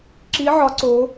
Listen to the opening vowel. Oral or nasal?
oral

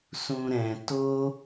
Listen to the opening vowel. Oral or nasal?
nasal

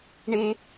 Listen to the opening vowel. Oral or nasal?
oral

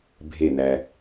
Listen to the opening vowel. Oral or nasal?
oral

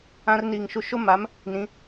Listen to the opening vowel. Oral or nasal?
nasal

